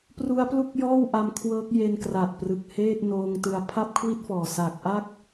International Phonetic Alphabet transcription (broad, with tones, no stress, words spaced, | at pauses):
pru˦˥a̯plu˥˩k̚jɔː˥˩w ʔa˧mkʰwɤː˦˥k̚je˧n kra˨˩t̚prɯ˨˩k̚heː˥˩t̚ noː˧ŋtɯ˧a̯ pʰa˥˩p̚kʰwi˥˩t̚fɔː˨˩ sa˨˩k̚ʔa˥˩k̚